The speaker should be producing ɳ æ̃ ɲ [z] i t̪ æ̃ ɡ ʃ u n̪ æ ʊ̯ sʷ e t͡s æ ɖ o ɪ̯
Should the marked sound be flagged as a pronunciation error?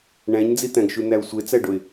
yes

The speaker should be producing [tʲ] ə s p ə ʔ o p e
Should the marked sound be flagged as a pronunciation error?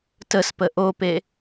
yes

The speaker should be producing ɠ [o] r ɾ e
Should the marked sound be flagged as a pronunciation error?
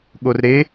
no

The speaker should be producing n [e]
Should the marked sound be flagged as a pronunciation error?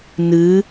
yes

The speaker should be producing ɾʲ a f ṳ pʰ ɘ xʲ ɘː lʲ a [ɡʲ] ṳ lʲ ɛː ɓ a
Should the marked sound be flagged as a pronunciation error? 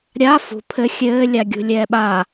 no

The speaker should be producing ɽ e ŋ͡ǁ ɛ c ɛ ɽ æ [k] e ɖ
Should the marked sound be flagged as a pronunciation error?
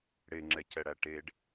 yes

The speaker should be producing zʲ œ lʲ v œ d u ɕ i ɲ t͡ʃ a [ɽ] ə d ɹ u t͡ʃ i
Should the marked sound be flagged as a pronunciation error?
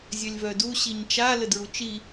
yes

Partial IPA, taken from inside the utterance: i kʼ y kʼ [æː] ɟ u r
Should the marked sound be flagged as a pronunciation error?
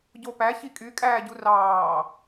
no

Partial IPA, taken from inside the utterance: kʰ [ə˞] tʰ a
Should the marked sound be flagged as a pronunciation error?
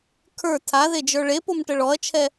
no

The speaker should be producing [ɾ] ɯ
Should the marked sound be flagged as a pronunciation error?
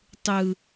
yes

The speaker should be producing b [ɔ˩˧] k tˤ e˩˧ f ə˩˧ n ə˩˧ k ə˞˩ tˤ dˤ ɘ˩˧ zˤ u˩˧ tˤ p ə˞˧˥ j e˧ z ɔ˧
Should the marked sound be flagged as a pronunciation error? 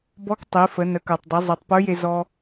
yes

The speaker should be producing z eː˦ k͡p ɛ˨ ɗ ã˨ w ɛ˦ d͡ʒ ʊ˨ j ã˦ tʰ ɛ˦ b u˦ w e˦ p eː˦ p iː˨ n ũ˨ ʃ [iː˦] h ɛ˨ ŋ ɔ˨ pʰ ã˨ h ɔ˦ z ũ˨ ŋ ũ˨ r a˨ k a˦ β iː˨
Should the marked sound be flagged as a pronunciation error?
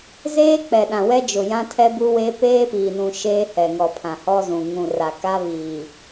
yes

